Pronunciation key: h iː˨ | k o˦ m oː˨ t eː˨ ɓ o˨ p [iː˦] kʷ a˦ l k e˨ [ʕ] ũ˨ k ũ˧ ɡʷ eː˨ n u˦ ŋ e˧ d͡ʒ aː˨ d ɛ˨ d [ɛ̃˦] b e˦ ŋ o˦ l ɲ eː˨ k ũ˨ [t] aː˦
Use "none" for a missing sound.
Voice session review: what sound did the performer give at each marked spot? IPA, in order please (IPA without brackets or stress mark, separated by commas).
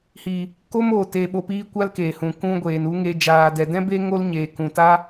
iː˧, h, ɛ̃˦, t